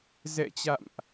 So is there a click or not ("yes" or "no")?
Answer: no